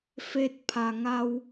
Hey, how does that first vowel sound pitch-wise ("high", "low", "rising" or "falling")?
rising